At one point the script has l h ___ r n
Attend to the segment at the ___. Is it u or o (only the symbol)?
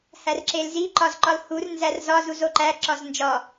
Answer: u